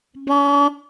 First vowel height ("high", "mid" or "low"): mid